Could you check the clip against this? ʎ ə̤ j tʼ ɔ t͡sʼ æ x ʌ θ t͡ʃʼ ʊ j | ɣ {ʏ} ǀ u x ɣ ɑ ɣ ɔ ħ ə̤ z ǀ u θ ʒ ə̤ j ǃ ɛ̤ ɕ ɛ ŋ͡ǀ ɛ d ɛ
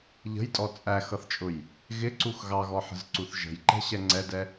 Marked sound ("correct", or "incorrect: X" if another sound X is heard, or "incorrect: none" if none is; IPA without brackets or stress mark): incorrect: ɪ